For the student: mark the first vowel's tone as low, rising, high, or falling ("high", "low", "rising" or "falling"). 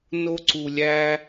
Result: high